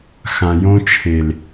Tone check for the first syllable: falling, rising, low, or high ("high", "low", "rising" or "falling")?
low